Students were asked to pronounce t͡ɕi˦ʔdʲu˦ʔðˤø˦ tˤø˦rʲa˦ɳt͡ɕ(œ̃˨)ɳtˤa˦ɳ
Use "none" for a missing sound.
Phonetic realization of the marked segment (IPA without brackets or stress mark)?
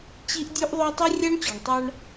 œ˨